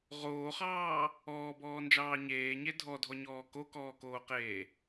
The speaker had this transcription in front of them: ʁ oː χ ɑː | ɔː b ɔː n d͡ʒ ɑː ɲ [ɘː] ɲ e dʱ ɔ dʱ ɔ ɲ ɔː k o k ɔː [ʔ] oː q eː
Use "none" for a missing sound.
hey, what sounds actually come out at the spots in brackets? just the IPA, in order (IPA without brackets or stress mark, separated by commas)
eː, k